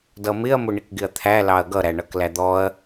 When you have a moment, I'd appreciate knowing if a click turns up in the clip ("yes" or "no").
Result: no